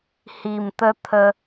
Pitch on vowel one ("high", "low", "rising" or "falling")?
low